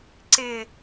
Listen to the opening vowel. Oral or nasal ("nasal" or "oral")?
oral